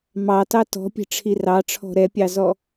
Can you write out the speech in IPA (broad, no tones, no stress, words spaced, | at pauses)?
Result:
mɑtɑ tɔ̤pʲɛ̤ʈ͡ʂʰi rɑʈ͡ʂʰɔ̤ ɾɛpʲɑzɔ